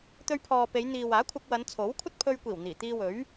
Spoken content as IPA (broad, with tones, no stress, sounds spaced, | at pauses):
t̪ ɵ˧ ɥ pʰ ɔː˨ p e˨˧ j n̪ iː˨ w aː˨˥ kʷʰ ɐ˧ k̚ w ɐ˨˧ n t͡sʰ o˨˥ w kʷʰ ɐ˥ t̚ pʰ ɵ˧ ɥ kʷ iː˨˩ w n̪ iː˨˩ t̪ iː˧ w ɵ˨˥ ɥ